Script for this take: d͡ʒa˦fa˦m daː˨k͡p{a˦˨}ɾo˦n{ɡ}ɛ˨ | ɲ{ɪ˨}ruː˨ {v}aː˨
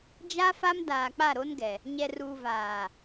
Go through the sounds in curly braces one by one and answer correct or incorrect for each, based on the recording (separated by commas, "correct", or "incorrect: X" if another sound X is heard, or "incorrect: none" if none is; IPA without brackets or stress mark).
correct, correct, incorrect: ɛ˨, correct